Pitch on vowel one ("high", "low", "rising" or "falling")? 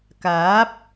rising